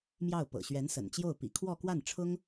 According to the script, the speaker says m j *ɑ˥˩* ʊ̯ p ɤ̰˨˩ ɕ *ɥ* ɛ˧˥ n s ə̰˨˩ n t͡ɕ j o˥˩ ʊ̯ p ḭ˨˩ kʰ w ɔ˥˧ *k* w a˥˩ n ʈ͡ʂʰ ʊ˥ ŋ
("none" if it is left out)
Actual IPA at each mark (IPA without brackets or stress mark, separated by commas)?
ɑ˥˩, ɥ, k